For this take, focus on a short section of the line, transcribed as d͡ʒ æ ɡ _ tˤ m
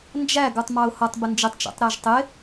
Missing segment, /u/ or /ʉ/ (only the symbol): u